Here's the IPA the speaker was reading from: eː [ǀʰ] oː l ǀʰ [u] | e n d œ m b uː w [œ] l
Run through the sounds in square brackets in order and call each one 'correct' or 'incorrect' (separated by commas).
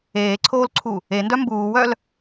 correct, correct, correct